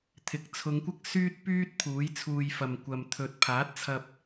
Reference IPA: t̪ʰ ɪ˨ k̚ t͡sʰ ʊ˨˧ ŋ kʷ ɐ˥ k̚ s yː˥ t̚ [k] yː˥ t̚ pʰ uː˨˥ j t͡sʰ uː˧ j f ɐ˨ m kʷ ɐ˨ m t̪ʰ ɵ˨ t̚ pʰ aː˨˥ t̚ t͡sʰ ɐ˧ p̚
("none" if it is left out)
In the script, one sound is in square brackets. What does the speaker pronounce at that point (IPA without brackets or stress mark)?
p